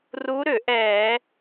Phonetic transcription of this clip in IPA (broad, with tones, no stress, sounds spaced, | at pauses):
r u˧˥ ɾ ʏ˧˩˧ ʔ ɛ˧˩˧